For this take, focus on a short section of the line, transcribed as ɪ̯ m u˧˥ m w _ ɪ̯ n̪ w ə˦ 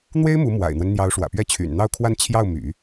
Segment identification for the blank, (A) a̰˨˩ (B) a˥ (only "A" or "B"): A